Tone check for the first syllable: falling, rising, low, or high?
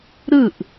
falling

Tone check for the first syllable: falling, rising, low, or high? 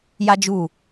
high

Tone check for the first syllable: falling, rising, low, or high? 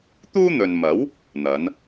high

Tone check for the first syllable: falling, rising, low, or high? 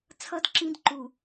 high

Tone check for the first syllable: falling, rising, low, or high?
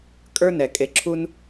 high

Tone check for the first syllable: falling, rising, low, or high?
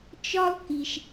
high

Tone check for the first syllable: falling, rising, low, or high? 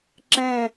falling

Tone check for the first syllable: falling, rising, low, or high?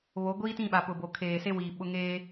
rising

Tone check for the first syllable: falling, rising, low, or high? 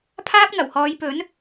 high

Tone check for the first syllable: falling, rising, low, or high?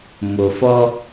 low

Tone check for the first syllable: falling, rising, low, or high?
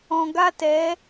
low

